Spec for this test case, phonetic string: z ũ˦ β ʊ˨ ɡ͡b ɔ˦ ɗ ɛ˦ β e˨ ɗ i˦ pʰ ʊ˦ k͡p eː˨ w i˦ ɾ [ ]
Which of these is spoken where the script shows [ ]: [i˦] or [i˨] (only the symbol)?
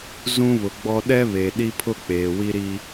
i˦